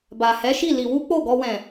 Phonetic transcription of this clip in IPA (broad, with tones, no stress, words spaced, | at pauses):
ba˨hɛ˨˦ʃi˦˨ li˧ wu˦k͡po˦˨ɡɔ˧ wɛ̃˨